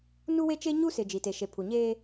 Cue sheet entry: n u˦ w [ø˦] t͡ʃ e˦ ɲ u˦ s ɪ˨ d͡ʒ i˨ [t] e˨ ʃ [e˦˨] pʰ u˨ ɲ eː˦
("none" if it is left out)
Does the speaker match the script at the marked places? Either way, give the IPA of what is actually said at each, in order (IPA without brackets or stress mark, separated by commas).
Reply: e˦, t, e˨